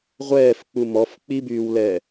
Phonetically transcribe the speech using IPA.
ʁʷ ɛː f k͡p u m ɔ f k͡p i b yː w l ɛ

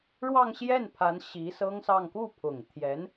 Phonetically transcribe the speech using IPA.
ɻ w ɑ˥˧ ŋ ɕ j ɛ˥˩ n pʰ a˧˥ n ɕ i˧˥ s ɤ˥ ŋ s ɑ˥˧ ŋ k u˥˩ pʰ ʊ˨˩ ŋ t̪ʰ j ɛ˧˥ n

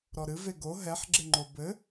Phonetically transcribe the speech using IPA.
ɾ ɔ ɾ ɨ v e ɡ o ɦ ɛ ħ ɡ͡ǁ e ŋ͡ǃ o b ɘ

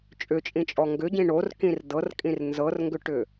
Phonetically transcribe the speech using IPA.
t͡ʃʼ ʏ t͡ʃʼ ĩ t͡ʃʼ ɔ ŋ ɡ ʏ ɟ ĩ ɳ o r k ĩ r d ɤ r kʼ ĩ r n z ɤ r ŋ ɡ ʏ ʈ ʏ

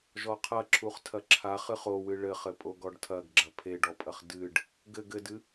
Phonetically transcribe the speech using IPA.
ʒ ɔ qʰ ɐ ǁʰ u χ tʰ ɐ ǁʰ a χ ɨ χ o w ɨ ɭ ɘ χ ɘ pʼ o ɡ ɔ ɖ tʰ ɐ ɡ ɡ͡ǁ ɐ pʰ e ɖ ɔ pʼ ɐ χ d ɨ ɖ | ɡ ɘ ɡ ɘ d ɨ

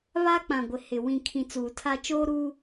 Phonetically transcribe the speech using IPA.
β a˦ k͡p ã˨ ɡʷ ɪ˨ h ɪ˨ w ĩ˨ kʰ ĩ˨ t͡s uː˨ tʰ a˦ t͡ʃ oː˦ ɾ uː˦

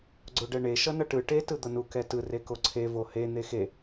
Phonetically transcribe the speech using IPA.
ɡ͡ǀ o ɖ ɛ ɳ e ʃ ʌ n ʌ ʈ ɯ ʈ e t ɯ d̪ ʌ n u k ɛ t ɯ r e k o ǀʰ e v o h e n̪ e x e

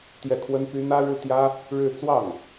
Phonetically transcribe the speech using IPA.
t̪ j ɛ˥˩ kʰ w ə˥ n p y˥ n̪ ä˥ ɻ ɻ̩˥ t̪ j ä˥ | ɻ ɻ̩˥˧ t͡s w ɑ˥˩ ŋ

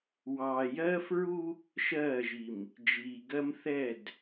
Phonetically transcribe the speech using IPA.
w ɑː˨ j ɜː˦ f ɹ u˦ | ʃ ɜː˦˨ ʒ i˨ m | d͡ʒ iː˨ ɡ ɜ˦ m θ ɛ˦˨ d

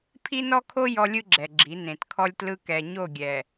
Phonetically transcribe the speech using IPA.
pʰ i˦ n ɔ˦ kʰ o˦ j ɔ˦ lʲ ɯ˦ ɡ͡ǁ ɛ˨ ɡ͡ǁ i˨˦ n ẽ˨ t kʰ ɔ˦ lʲ t l ɯ˦ k ɛ˨ ɲ o˦˨ ɡʲ ɛ˨

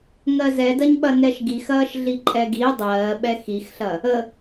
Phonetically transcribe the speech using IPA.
ŋ ɜ z ɛ d ɐ ɲ ɓ ɐ n ɛ ʃ ɡ i x ɐː ʃ ɮ i ǃʼ ɛ ɡ i dˤ ɜː ɓ ɛ x i x ɬ ɐ | ə

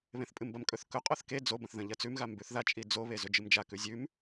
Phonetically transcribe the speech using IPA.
β ẽ θ pʼ ɨ m b ɐ m kʼ ɵ θ k ɵ qʼ o θ k e d͡z o b ɐ̃ θ ð ɐ̃ ʎ ɐ t͡s ʉ m ɣ a m b ʉ θ ð a t͡ʃʼ i d͡z o β e z ɵ d͡ʒ ɨ m d͡ʒ a k ʉ zʲ ʉ m

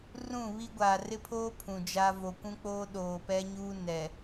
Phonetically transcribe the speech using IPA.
r ũ˦˨ β i˦ ɡʷ aː˨ r ɪ˦ pʰ oː˦ pʰ ũ˨ d͡ʒ a˦ v o˨ kʷ ũ˦ k͡p oː˦ ɗ oː˨ p ɛ˦ ɲ uː˦ n ɛ˨

